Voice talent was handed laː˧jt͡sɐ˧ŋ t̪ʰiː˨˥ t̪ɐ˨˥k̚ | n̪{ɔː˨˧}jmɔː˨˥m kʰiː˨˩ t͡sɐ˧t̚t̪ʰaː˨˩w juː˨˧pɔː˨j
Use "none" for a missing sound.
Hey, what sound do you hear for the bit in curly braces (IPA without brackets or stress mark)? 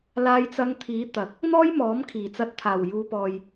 ɔː˥